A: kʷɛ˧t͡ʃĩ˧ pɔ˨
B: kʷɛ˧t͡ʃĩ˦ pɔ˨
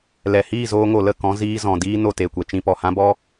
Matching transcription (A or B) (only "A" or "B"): B